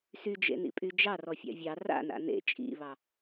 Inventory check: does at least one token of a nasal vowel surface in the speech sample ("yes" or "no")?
no